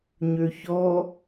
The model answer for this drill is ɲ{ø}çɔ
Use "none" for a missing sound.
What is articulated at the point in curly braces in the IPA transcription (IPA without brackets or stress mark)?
ø